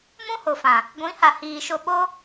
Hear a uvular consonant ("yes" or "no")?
no